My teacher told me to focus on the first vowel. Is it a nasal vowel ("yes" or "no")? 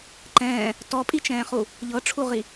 yes